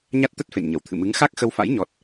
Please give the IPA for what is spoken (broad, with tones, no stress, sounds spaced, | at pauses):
ɲ a˦˥ t̚ t̪ ə˦˥ t̚ f ḛ˧˨ n ɲ ə˧˩ w t̪ʰ ɨ̰˧˨ m ɨ˨˦ ŋ x a˦˥ k̚ x ə˧ w f a̰˧˥ j ɲ ɔ˦˥ t̚